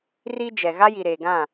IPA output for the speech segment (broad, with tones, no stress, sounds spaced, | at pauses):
r i˦ d͡ʒ ɛ˨ ɣ a˦ j i˨ ɾ eː˨ ɡ ã˦˨